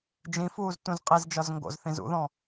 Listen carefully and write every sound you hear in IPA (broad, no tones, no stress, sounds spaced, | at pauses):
d͡ʒ ĩ f uː z t ũ z qʼ i z d͡ʒ ɒ z ŋ ɡ o̰ z θ ĩ z ṵ ð ɔ̃